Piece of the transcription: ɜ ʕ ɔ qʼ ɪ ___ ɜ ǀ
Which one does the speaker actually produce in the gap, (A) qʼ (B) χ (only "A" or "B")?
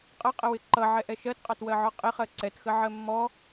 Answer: B